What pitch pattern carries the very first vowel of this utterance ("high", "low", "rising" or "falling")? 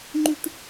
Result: high